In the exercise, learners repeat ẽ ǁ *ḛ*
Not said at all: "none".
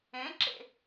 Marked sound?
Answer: ḛ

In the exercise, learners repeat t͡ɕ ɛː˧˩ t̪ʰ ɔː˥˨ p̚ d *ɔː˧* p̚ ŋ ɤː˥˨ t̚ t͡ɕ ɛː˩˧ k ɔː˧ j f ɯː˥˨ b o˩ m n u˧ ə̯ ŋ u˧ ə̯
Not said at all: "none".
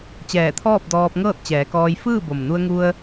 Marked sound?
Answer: ɔː˧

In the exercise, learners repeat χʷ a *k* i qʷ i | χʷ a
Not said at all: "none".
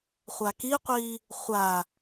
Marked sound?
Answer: k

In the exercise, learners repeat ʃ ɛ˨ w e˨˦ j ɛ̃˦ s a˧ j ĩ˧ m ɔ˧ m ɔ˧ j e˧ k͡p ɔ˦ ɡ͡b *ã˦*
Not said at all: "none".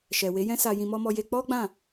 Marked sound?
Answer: ã˦˨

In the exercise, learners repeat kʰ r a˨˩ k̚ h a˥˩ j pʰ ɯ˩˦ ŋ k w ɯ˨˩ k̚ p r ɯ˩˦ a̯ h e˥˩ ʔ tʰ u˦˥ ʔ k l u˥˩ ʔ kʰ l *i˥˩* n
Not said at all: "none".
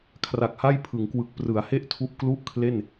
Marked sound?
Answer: e˥˩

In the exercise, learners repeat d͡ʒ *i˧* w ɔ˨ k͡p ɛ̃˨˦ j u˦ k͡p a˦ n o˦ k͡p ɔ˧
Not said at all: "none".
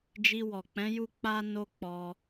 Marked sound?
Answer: i˧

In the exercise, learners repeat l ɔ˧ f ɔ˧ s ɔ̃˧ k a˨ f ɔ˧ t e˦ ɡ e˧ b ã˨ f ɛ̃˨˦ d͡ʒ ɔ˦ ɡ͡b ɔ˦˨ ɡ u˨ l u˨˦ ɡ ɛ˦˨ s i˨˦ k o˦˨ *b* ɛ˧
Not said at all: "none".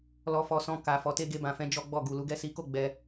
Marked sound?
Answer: ɡ͡b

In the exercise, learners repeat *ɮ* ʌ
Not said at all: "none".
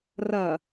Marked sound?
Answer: r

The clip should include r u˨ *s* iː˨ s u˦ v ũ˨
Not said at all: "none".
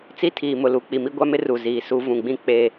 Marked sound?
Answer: z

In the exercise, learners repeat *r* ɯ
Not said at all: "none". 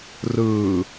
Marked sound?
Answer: r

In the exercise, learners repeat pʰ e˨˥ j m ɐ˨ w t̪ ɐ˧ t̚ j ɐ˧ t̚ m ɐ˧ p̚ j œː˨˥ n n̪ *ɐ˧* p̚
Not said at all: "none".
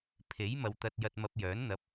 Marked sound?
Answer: ɐ˨˥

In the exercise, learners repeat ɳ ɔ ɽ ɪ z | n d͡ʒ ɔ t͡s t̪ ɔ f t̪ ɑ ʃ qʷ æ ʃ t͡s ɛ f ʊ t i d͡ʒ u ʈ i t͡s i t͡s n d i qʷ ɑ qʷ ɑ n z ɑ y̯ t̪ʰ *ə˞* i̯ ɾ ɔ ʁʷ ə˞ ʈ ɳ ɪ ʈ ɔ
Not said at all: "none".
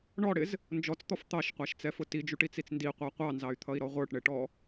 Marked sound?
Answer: ʌ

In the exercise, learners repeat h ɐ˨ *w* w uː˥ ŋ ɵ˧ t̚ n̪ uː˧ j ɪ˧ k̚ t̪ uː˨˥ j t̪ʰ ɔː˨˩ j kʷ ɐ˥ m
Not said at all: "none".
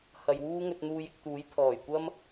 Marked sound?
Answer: j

